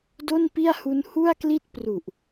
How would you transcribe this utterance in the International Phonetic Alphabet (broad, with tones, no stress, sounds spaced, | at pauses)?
d o˥˩ n p i˥˩ a̯ h u˦˥ n h u˥˩ a̯ k l i˥˩ t̚ p r u˨˩ ʔ